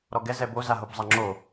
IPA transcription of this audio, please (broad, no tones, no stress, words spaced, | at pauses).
ɾɔɡɛ zɛbo zaɦobzˤaŋ͡ǁo